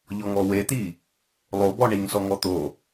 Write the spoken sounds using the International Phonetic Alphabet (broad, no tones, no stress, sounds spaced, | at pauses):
ʎ ɔ ŋ ɔ w e t̪ i | lˠ o b ɔ ɳ i ŋ s ɔ ŋ ɔ t̪ o